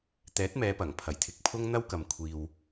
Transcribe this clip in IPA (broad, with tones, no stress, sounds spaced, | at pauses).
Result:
t̪ ɛː˨˥ t̚ m ɛː˨˧ p ɐ˨˩ ŋ pʰ ɐ˨˩ j t̪ʰ ɪ˨ k̚ pʰ ʊ˥ ŋ n̪ ɐ˥ w k ɐ˨ m kʷʰ iː˨ w